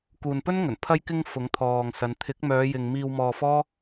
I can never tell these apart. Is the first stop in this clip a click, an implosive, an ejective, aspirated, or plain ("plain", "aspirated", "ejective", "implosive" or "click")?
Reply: plain